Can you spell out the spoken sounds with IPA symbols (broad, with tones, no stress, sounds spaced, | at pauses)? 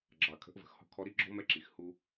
ɡ͡ǁ ɑ˨ kʰ ə̤˨˦ ʔ v ə̤˨ x h ɔ̤˦ kʰ ɔ˦ ɾ i˦ ɡ͡ǁ ɔ̤˦ m ɛ˦ ǁ i˨ x h u˦